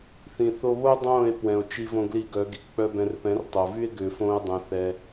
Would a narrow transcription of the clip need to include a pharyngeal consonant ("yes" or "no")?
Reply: no